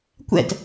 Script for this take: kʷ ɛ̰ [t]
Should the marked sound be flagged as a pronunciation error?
no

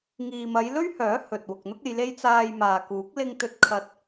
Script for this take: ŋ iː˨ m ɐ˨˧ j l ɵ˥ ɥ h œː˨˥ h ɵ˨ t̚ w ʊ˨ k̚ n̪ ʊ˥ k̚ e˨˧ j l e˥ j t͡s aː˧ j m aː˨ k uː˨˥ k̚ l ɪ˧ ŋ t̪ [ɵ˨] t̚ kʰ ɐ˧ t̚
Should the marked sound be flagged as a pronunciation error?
yes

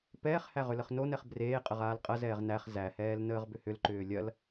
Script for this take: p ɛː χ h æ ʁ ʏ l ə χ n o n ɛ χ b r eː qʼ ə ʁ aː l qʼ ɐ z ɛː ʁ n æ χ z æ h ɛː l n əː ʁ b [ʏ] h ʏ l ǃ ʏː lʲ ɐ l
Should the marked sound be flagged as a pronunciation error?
no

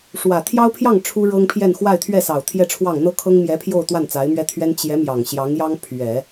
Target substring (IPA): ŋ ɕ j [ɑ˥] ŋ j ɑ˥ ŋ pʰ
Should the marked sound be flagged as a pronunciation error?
yes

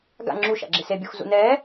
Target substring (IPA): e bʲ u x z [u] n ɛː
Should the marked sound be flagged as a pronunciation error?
yes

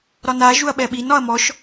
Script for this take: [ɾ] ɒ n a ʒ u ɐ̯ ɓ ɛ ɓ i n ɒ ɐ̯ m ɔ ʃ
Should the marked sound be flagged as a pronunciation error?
no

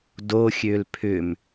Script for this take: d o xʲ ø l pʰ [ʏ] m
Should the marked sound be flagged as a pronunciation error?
no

